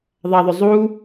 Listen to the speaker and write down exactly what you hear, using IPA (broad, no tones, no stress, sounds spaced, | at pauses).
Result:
ðˤ a ðˤ ɵ zˤ u